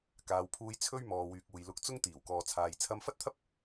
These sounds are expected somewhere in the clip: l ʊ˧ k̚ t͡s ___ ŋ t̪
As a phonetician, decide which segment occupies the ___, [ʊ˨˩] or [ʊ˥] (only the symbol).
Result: ʊ˥